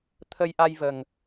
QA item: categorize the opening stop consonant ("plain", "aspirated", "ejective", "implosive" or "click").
aspirated